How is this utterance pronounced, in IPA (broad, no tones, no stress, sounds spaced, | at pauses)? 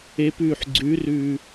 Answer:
e p ʉː ħ ɡ͡ǀ ʉ r ʉː